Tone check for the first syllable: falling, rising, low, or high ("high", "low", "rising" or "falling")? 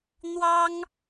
high